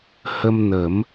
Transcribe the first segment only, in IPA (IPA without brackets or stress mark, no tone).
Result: h